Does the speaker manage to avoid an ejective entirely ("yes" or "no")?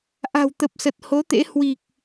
yes